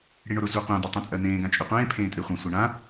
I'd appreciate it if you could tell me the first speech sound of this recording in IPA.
ɽ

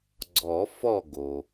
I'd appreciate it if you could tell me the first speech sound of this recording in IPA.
ɡ͡ǀ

